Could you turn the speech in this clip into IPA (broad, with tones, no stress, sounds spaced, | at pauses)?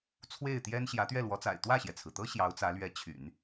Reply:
t͡sʰ w e˥˩ ɪ̯ t̪ j ɛ˥ n ɕ j ä˧˥ t̪ ɥ ɛ˥˩ l w ɔ˧˥ t͡s a̰˨˩ ɪ̯ t̪ w ä˥˩ ɕ j ɛ˩ t͡sʰ ɹ̩˩ t̪ ɤ˥ ɕ j ɑ˧˥ ʊ̯ t͡s ä˧˥ l ɥ ɛ˧˥ t͡ɕʰ y̰˨˩˦ n